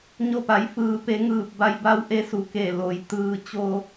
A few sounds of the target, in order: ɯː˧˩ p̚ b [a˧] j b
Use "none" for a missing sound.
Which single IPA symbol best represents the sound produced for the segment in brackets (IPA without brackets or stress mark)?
a˧